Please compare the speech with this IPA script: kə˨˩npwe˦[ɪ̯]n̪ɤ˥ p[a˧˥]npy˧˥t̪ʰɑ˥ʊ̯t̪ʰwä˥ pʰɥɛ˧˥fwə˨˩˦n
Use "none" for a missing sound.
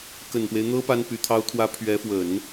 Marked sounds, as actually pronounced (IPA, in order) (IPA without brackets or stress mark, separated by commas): ɪ̯, a˥